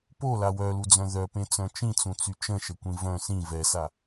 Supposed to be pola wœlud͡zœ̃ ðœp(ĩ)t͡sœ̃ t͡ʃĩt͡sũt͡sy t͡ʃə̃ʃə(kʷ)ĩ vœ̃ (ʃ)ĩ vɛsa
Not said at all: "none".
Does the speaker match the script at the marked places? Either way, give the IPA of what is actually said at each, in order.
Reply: ẽ, kʷ, s

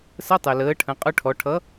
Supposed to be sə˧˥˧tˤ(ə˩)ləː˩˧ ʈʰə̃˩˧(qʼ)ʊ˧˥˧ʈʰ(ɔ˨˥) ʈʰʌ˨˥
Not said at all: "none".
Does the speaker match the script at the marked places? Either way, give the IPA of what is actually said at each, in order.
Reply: ɛ˩, qʼ, ɔ˩˧

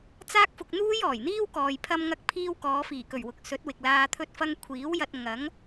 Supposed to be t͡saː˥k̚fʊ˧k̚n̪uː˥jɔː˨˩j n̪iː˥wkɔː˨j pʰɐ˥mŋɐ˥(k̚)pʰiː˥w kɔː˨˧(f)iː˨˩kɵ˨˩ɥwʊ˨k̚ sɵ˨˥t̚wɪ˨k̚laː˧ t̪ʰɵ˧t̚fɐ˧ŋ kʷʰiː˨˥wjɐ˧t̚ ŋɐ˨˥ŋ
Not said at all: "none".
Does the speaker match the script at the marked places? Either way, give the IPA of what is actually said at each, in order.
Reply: k̚, f

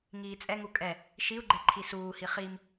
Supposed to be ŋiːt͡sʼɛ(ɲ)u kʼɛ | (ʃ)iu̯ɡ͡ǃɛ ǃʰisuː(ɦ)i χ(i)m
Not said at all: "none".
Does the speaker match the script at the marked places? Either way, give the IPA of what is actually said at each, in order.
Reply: ŋ, ʃ, h, i

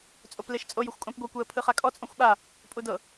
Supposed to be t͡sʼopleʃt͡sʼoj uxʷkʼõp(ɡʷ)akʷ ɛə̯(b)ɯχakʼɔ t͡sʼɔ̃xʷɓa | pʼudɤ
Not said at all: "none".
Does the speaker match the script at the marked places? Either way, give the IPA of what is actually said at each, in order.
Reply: ɡʷ, pʰ

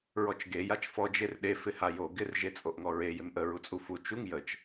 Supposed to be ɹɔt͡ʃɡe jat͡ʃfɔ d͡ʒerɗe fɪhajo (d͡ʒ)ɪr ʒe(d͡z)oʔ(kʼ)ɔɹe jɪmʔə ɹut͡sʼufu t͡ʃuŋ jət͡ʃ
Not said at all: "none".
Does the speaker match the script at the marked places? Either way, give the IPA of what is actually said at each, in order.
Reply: ɡ, t͡sʼ, ŋ

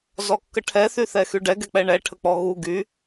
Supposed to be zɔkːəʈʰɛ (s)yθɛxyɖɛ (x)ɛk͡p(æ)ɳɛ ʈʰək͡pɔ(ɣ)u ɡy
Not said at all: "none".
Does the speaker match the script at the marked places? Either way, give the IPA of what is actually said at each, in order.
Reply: θ, ɡ, ɛ, ɣ

